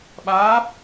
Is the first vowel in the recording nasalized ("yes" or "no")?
no